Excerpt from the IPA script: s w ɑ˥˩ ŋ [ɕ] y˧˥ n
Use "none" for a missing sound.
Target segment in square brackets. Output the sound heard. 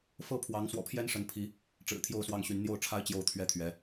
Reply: ɕ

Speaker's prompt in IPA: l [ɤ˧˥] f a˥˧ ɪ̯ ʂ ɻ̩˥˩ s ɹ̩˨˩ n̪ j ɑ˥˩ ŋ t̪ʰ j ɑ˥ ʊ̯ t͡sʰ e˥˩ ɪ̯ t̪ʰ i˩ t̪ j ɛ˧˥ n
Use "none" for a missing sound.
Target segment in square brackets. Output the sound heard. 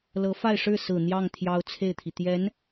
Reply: ɤ˧˥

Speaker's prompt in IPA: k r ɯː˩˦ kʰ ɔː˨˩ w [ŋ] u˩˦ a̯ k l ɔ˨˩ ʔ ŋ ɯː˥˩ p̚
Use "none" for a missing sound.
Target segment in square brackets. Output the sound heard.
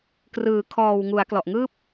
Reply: ŋ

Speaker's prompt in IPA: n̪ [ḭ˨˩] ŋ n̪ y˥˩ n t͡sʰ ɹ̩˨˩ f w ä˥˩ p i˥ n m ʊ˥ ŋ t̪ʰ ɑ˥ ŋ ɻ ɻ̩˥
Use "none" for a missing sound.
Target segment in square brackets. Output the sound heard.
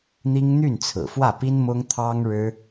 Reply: i˥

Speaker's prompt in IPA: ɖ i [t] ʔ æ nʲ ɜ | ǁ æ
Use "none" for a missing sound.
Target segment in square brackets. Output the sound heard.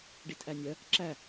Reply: t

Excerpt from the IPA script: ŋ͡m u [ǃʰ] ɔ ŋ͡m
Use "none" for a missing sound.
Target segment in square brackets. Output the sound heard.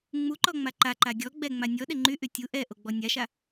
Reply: ǃ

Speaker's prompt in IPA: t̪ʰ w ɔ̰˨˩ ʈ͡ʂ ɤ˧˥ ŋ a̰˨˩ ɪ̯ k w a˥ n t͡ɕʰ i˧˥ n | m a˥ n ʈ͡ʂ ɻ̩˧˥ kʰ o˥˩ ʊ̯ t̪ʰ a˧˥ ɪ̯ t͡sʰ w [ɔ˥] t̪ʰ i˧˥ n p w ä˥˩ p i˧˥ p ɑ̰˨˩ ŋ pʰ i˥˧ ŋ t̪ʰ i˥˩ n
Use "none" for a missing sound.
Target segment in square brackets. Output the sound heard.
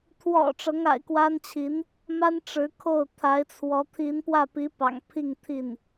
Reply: ɔ˧˥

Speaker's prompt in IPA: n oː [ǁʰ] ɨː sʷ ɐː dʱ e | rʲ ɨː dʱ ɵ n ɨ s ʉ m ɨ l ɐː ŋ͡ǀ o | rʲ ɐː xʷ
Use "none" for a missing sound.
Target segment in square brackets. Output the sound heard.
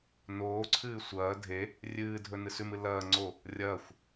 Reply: ǀʰ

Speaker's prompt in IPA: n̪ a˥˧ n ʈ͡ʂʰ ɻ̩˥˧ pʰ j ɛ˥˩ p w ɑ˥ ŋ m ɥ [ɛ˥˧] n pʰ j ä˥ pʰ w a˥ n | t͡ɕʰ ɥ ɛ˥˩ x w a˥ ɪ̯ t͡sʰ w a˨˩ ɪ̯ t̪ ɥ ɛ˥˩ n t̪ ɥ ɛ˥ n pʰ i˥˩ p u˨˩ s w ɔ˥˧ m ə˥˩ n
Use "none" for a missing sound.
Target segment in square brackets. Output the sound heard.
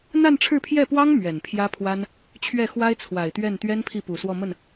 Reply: ɛ˨˩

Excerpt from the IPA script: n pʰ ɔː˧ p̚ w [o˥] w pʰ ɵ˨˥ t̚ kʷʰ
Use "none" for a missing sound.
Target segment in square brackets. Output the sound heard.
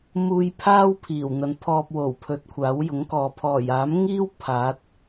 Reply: o˨˩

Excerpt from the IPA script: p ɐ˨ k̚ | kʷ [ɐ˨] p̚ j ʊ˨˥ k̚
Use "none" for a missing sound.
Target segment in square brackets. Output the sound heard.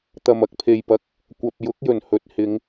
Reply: ɐ˨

